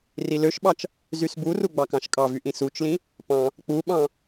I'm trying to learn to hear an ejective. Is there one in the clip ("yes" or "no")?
yes